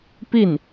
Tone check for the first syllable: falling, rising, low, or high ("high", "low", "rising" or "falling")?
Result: falling